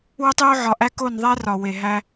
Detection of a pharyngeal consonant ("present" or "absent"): present